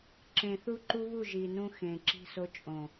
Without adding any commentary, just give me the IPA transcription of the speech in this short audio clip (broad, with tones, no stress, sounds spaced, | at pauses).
ǁ ẽ˨ θ u˦ ǃ u˦ β u˦˨ ʒ i˨ n ũ˦ x ẽ˨ ǁ i̤˦ s o˦ t͡ʃʼ õ˨